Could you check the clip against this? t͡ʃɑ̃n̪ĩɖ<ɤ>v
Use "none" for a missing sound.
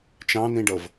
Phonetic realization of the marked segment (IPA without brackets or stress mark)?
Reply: ɤ